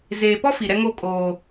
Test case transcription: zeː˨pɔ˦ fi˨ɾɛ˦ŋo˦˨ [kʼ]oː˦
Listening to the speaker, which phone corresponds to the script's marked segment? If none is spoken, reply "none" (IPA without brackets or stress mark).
kʼ